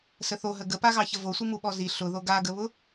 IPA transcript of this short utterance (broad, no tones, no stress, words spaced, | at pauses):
səθoɦə ɡəpaɣɑçə vosʷi muɓɔzi ɬʊðo ɡaɡəβʊ